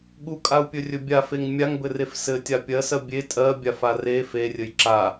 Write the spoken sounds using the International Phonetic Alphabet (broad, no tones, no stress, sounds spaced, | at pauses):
ɠ u kʼ a u̯ pʲ ɵ rʲ ɵ bʲ a f e ŋ mʲ a ŋ b ɘ r e f s ɘ tʲ a pʲ ɜ s ɜ bʲ e tʼ ɜ bʲ a f a r e f e rʲ ɘ j ǁ a